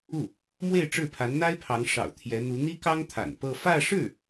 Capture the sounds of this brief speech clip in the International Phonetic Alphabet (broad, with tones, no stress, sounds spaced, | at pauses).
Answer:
u˥˩ | m w e˥˧ ɪ̯ ʈ͡ʂ ɻ̩˥˩ pʰ a˧˥ n n̪ a˥ ɪ̯ pʰ ɑ˧˥ ŋ ʂ ɑ̰˨˩ ʊ̯ t̪ʰ j ɛ˧˥ n̪ u˧˥ n̪ i˥ k ɑ˥ ŋ t̪ʰ a̰˨˩ n p ɤ˥˧ f ä˥˧ ʂ ɻ̩˥˩